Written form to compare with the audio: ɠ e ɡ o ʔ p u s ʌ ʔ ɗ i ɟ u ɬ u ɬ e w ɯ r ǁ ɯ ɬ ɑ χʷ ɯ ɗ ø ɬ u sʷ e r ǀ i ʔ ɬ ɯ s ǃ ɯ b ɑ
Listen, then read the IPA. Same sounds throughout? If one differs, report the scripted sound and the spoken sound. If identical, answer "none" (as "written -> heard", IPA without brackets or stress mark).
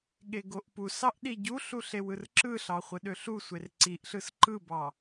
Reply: ʌ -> ɑ